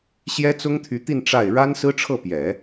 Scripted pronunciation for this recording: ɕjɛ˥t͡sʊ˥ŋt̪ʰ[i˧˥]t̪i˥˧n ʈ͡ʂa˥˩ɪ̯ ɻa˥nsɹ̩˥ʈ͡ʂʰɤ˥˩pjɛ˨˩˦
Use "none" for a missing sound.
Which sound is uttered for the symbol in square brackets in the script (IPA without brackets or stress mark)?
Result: y˧˥